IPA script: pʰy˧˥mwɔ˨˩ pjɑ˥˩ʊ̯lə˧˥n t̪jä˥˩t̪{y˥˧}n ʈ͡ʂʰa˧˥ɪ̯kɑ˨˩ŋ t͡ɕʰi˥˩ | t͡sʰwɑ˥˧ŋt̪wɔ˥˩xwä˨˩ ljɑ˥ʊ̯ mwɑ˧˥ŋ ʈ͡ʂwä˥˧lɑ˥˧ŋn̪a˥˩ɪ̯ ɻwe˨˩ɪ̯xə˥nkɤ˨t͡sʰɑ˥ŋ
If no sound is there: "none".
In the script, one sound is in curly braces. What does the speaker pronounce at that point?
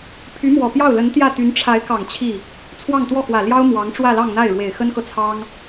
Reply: y˧˥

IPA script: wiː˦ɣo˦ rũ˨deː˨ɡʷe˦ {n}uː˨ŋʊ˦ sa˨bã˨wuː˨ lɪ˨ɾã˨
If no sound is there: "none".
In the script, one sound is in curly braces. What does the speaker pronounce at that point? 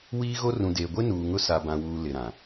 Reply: n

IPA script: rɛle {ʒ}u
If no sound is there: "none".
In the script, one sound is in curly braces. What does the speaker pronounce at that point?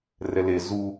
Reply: z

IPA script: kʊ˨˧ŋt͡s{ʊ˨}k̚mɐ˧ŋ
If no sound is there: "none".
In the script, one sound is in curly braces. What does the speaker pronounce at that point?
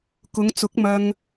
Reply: ʊ˨˥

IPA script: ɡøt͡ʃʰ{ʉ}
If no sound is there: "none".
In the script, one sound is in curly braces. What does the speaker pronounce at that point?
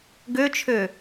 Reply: ø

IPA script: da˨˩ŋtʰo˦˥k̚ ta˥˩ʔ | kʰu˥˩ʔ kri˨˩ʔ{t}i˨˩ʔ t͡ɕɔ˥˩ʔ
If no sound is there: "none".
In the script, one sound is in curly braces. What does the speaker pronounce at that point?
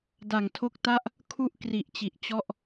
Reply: t͡ɕ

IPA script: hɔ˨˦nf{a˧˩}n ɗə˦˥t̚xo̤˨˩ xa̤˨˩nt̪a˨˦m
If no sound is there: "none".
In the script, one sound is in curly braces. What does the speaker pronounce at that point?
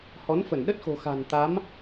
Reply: ə˧˩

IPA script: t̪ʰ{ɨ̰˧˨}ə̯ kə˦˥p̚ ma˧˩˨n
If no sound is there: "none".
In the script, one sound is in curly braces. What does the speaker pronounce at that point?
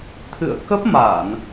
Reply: ɨ̰˧˨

